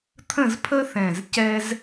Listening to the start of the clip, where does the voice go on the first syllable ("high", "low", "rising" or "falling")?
falling